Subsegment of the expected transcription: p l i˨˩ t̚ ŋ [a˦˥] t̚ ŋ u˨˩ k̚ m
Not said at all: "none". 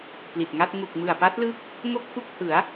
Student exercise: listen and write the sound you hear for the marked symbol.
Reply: a˥˩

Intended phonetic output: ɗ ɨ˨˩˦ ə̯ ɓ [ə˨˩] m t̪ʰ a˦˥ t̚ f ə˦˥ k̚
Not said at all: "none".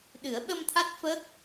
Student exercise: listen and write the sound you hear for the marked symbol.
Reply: ə˧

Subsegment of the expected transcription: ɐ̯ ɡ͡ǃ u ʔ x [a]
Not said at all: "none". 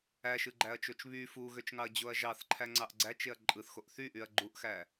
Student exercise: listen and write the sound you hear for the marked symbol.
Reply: æ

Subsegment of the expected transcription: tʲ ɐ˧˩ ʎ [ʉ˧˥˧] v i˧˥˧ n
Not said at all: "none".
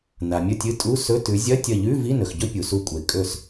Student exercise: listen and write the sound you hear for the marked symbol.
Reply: ʉ˧˥˧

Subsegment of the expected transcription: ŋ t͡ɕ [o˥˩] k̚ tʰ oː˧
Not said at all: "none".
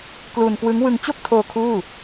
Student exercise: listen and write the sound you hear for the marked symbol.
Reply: o˥˩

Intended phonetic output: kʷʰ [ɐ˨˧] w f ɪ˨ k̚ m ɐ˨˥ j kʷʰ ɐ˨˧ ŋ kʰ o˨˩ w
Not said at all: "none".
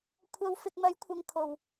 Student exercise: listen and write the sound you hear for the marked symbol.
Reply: ɐ˨˧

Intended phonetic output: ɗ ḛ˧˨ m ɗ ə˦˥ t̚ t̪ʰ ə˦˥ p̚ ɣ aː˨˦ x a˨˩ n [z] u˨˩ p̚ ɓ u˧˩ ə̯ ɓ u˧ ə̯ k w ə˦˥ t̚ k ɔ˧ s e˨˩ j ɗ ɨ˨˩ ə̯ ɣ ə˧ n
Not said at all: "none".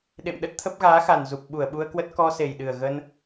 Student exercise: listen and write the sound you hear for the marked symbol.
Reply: z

